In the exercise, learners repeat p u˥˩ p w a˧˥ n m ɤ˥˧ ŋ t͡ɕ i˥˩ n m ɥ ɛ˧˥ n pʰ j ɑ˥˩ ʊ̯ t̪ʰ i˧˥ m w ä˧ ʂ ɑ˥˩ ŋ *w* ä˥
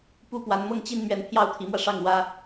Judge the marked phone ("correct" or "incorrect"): correct